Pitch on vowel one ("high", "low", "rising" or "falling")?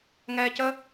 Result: low